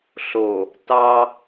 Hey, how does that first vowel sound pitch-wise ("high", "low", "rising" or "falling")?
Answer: low